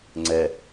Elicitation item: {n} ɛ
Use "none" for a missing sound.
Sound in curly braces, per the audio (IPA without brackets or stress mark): ŋ͡ǀ